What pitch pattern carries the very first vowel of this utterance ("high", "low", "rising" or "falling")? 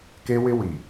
high